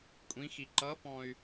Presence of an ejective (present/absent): present